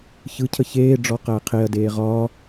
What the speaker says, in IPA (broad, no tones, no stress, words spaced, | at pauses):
çɯcʰə çeːɖ͡ʐɔ qæːqʰeɐ̯deː ʁɒː